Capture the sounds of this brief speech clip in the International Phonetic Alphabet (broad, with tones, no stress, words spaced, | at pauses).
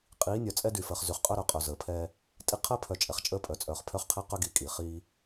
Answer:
qʼiː˨˦nʲœ˨t͡sʼɛ˦dy˨ fəː˨χzy˨χqʼœ˦ɾœ˨ qʼœ˨zəː˨pʰɛː˦ | tʼi˦ qʰəː˦pʰœ˨ t͡ʃʼɛ˨χt͡ʃʼəː˦pʼœ˨t͡sʼœː˨χ pʰœ˦χqʰɛ˦qœ˦ɡiː˨ kʼi˨ χiː˦